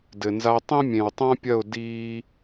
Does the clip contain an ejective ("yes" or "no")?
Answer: no